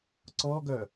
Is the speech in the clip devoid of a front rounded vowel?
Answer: no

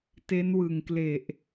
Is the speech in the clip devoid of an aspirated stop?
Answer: yes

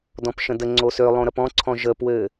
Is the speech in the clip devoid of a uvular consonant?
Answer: yes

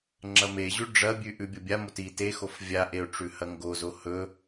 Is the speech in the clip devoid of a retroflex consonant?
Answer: no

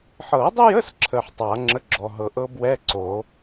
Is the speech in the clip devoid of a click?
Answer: no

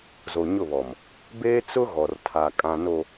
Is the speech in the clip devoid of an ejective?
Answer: no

